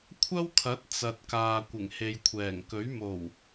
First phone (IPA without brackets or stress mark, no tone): kʷʰ